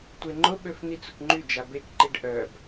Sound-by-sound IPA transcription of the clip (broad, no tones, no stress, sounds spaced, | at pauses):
tʷ e ŋ͡ǃ ʊ ɓ ø f n̪ i t͡s ʊ k ŋ͡ǃ y d͡ʒ a b e k ǃ i ɖ ʔ œ b